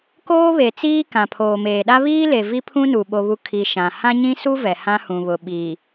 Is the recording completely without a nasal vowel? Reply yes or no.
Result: no